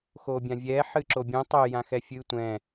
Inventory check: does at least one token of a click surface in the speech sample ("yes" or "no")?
yes